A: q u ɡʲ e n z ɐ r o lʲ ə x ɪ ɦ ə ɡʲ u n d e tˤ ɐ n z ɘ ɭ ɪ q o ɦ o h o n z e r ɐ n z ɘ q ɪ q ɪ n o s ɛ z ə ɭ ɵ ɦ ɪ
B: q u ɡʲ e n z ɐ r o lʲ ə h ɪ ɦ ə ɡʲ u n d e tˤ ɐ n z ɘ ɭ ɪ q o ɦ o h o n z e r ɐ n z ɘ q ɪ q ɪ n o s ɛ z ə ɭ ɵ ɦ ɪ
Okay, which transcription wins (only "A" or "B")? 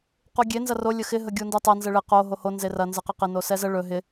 A